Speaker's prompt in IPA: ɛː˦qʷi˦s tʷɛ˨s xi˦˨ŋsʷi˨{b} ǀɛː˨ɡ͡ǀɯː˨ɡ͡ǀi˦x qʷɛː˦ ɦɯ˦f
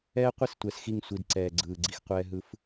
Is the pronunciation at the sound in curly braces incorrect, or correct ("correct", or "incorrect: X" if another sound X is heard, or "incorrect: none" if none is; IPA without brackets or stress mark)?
incorrect: d